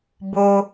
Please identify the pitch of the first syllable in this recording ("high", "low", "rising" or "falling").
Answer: high